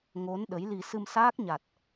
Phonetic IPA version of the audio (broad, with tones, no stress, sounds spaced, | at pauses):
ŋ o˨˦ n ɗ ə˨˦ j l i˧ s ɨ˧ m s aː˦˥ k̚ ɲ a˨˩ t̚